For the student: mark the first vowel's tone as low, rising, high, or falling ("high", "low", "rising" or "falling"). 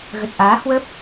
low